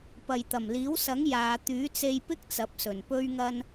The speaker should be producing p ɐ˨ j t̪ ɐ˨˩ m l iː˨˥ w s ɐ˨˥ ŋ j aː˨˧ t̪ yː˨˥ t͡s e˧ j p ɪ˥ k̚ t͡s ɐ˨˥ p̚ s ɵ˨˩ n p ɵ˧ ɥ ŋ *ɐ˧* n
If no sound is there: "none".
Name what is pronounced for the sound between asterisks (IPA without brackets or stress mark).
ɐ˧